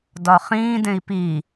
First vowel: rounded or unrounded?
rounded